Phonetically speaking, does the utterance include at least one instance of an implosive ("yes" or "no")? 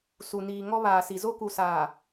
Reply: no